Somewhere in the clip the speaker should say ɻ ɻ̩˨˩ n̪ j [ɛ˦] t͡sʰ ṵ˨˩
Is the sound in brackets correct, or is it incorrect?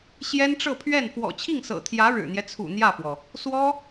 correct